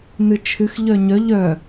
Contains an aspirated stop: yes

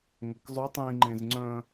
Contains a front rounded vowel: yes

